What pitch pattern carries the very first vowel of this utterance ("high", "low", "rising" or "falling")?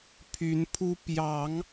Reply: rising